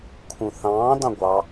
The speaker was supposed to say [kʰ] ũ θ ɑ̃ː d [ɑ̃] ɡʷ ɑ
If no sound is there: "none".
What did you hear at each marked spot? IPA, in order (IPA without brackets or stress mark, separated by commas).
kʰ, ɑ̃